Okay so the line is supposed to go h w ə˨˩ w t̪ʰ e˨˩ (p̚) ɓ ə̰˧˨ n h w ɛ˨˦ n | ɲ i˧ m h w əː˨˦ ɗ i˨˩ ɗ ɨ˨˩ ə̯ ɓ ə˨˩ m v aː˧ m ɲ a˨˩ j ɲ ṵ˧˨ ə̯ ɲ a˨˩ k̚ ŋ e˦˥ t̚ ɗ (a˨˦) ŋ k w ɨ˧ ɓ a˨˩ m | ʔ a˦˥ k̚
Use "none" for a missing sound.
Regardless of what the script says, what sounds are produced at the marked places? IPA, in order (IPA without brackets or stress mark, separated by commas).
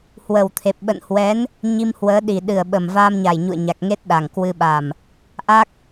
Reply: p̚, a˨˩